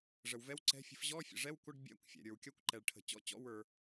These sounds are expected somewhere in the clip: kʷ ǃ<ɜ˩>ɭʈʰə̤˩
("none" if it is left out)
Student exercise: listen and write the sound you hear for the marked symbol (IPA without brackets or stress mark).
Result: ɛ˩